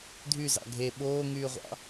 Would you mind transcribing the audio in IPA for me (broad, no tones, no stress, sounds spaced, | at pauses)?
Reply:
dʱ y z ɑ̰ ɡʱ e ɓ oː ŋ yː ʁʷ ɑ̰